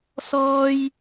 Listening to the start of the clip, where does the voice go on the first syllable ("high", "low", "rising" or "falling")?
high